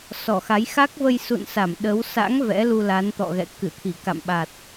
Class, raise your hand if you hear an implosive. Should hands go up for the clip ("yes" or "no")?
yes